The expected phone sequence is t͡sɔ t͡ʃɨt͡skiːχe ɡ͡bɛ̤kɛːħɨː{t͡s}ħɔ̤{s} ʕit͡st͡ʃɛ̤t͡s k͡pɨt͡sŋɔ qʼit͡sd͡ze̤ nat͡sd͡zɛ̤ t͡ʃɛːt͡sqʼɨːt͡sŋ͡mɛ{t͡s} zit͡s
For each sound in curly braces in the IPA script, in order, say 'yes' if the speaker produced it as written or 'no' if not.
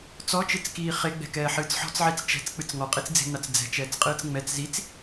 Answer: yes, no, yes

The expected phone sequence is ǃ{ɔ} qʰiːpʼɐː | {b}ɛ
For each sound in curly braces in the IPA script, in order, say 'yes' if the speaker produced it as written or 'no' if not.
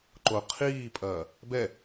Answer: no, yes

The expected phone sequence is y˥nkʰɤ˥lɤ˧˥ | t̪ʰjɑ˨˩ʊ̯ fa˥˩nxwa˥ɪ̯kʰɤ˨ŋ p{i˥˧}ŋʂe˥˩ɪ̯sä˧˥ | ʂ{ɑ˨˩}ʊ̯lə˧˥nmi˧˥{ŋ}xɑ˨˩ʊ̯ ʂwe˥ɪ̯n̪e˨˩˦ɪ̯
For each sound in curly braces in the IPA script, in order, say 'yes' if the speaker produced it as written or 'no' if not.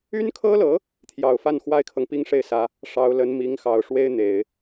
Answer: yes, no, yes

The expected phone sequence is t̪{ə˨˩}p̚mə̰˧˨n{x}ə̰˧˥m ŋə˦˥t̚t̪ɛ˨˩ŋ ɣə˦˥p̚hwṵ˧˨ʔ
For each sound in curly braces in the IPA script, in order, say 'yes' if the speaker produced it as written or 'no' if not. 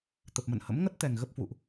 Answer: yes, no

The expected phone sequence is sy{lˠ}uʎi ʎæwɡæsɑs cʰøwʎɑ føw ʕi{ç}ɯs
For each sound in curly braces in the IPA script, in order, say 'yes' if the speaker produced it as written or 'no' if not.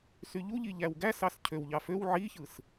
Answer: no, yes

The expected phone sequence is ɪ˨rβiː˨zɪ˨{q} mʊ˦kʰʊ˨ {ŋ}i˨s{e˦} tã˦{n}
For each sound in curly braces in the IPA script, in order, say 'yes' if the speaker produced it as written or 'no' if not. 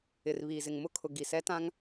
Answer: no, no, no, no

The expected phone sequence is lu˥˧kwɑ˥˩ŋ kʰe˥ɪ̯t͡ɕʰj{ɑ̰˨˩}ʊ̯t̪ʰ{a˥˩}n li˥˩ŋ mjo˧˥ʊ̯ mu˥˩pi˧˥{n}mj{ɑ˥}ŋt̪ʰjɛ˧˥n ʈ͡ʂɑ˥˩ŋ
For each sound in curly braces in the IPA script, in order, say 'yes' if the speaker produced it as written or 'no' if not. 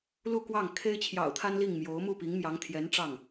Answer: yes, no, no, no

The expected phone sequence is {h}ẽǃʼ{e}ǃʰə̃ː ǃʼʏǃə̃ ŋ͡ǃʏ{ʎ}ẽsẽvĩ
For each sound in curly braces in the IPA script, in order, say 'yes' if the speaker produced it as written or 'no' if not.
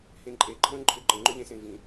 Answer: yes, yes, yes

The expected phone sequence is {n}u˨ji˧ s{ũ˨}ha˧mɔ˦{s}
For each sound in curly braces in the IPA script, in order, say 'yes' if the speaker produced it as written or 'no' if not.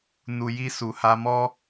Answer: yes, no, no

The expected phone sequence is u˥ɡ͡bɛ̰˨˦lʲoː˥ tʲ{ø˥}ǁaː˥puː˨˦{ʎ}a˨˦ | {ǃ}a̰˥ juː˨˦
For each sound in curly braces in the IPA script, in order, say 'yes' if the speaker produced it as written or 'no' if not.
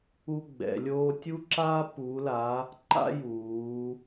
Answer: no, no, yes

